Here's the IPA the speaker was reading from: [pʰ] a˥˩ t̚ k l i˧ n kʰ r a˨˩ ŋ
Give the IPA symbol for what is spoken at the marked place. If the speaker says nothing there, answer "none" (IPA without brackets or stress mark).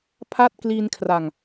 pʰ